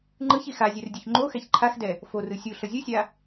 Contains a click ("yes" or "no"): yes